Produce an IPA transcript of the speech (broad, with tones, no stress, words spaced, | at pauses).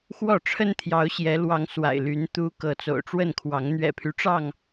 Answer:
xwɔ˥˨ ʈ͡ʂʰə˦nt̪ʰjɑ˨˦ʊ̯ɕjɛ˨˦lwɑ˨˦ŋ swa̰˨˩ɪ̯ly˨˦n t̪u˨˦ kɤ˨˦t͡so̰˨˩ʊ̯ʈ͡ʂwə˥˨nkʰwɑ˨˦ŋ n̪ɥɛ̰˨˩pʰy˦ʈ͡ʂɑ˥˨ŋ